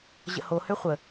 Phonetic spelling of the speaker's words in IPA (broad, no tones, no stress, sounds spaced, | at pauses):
ʑ ə̰ h o h ø χʷ ə